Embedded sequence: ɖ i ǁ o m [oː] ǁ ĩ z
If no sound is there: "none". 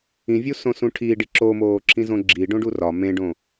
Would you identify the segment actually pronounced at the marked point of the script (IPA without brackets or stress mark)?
oː